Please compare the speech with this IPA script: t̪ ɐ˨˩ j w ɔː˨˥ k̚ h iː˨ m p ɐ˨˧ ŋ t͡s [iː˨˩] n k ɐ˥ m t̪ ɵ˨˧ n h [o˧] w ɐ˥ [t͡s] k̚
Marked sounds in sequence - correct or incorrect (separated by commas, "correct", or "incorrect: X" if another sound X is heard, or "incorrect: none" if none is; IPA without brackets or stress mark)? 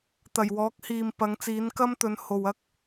incorrect: iː˨˥, incorrect: o˨, incorrect: none